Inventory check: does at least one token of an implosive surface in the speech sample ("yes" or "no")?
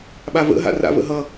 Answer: yes